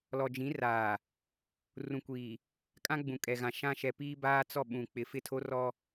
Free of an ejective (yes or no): no